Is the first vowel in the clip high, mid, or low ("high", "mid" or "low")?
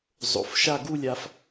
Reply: mid